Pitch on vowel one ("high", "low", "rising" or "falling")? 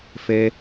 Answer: high